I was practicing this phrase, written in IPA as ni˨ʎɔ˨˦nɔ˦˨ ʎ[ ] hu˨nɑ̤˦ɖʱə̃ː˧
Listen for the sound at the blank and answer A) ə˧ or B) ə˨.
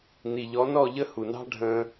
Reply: A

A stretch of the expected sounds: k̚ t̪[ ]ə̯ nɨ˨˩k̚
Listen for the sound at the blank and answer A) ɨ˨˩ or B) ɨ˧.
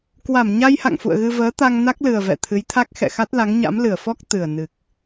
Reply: A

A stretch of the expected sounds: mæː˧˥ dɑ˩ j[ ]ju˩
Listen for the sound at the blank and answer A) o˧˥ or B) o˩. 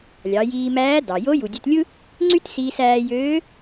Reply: A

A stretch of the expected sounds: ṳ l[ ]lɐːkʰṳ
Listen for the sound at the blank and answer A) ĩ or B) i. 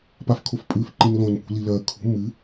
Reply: B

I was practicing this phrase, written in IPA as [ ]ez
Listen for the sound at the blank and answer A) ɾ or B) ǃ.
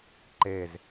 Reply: B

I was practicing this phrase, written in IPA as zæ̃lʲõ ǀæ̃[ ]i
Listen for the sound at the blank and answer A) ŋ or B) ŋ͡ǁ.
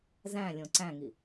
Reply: A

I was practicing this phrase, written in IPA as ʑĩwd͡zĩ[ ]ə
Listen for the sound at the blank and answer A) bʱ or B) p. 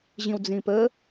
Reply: B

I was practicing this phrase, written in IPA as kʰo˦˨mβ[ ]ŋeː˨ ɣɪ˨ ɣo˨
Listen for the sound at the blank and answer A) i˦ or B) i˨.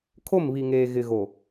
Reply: B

